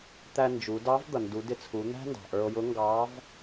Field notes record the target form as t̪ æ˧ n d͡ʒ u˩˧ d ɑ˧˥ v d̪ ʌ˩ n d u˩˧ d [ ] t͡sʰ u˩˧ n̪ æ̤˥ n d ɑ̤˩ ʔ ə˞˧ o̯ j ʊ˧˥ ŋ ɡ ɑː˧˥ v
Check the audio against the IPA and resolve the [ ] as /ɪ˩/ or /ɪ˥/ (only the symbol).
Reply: ɪ˩